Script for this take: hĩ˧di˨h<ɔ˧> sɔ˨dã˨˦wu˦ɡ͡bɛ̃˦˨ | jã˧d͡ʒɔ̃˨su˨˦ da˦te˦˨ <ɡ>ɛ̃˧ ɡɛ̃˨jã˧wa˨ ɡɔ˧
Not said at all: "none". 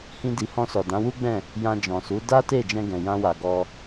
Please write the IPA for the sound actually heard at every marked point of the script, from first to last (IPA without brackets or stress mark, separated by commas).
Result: ɔ̃˧, d͡ʒ